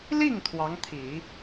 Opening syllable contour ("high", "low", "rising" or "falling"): falling